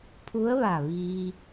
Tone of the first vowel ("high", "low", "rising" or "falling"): rising